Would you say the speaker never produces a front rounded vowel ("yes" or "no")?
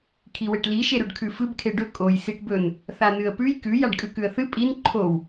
yes